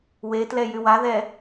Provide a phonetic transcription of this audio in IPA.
wetlɛ jywaðɛ

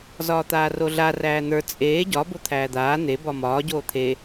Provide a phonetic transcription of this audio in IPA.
zɒːt̪aːroɮa ræːn̪ə˞ t͡sʼeː ɟɒ bot̪ʰæːd̪aː n̪e bɒmɒː ɟoːt̪ʰe

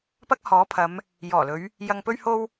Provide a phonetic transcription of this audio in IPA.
pɐ˥k̚hɔː˨˥pʰɐ˨˧m | jɔː˨˩lɵ˨˧ɥ | jɐ˨ŋpɵ˧ɥho˧w

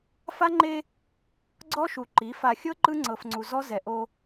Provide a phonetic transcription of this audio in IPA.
fa˦ŋ͡ǃe˦ | ɡ͡ǀɔ˦ʃu˨ǃi˨˦ fa˨xʲɤ˦ ǃɯ˦ŋ͡ǀɤ˨fŋ͡ǀu˨ zɔ˦ zɛ˨ʔo˦

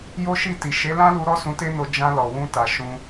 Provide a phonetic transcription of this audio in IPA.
jo˦ʃi˦˨ti˨ ʃe˨˦lã˦lu˧ ɾɔ˦sũ˧te˦no˧ d͡ʒã˧lɔ˨ wũ˧ta˨ ʃũ˧

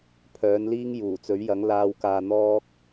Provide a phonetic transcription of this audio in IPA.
pʰœː˨˥nliː˥ŋ juː˨˩t͡sɵ˨˥ɥjɐ˨˥ŋlaː˧w kaː˧n̪ɔː˥k̚

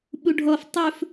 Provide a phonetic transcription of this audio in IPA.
ɓuɖʱɔf tˤɵf

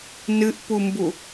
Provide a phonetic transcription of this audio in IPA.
nɨʔpumbu

